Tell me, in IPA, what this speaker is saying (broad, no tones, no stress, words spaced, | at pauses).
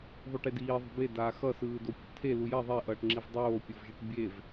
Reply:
ðˤuʈediː ðˤṳbe daːxʌ sɯːdopʲuʈtʰe lujɛ ðˤeʔʌːʈŋ͡ǁiv dˤoːpʲovʒeʈ bʲev